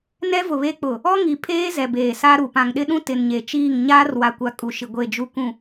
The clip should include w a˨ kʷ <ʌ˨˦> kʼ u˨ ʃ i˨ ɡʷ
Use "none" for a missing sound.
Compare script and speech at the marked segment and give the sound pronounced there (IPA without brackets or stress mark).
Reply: a˨˦